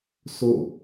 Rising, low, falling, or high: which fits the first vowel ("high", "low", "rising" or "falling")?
falling